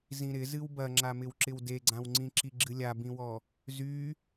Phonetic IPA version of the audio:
z ĩ ɾ ɪ z ɨ w b ɐ ŋ͡ǁ a m ɪ w ǁ ɪ w d e ɡ͡ǀ ã w ŋ͡ǀ ĩ ǁ i ɡ͡ǁ ɨ lʲ a b ĩ w ɔ | z y

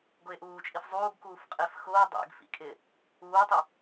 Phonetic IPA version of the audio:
ɡ ʊ ɪ̯ ʔ uː t͡ʃʼ i f zˤ uː ɡ k uː f qʼ e f x ʊː dˤ ḛ ɡ f ḭ kʼ ɪː | uː tˤ ɪ

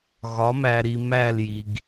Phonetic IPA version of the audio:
ɣ ɒ˩˥ m æ˨ ɾ i˨ m æ˥˨ l j i˨ ɡ

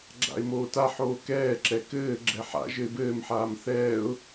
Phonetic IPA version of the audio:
ɡ͡ǁ a̰ ɪ̯ m oː t a ħ oː k ɛː ǁ ɛ k ɘː ɡ͡ǁ ɛ ħ a̰ ʒ ɘ ɪ̯ b ɘː m ħ aː m θ ɛː ʊ̯

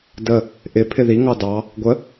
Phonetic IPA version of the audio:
d ə | ʔ ɪ pʰ ɪ ð i ŋ ɑ d ɑ | ɡʷ ə

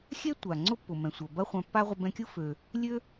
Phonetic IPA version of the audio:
xʲ ɛ˥ tʷ a˩ ŋ͡ǀ ʊ˥ pː ʊ˩ m ɛ̃˩ sʷ ɐ˩ b ɐ˥ χʷ ã˧ pː a˥ ʁʷ ə˧ b ɛ̃˧ kʲ ʊ˥ f ø˩ | lʲ ø˥

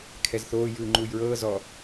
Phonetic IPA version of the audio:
kʰ ɛ z θ oː j ɯː ŋ͡ǃ uː j ɹ ɤː z ɔ

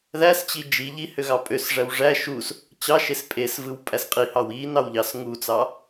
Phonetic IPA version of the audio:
ð æ s t͡ɕ i d͡ʒ i ʎ i h ø ɣ ɑ pʼ ø s ʐ æ w ʐ æ ʃ u s | t͡ɕ ɑ ʃ e s pʼ e s v ɯ w pʼ æ s qʼ i h ɑ w i n ɑ w ʎ ɑ s ŋ u t͡s ɑ

